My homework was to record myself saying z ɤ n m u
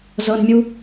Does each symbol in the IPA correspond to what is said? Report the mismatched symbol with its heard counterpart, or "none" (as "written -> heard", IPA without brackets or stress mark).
m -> mʲ